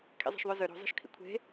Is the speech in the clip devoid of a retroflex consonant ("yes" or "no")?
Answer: yes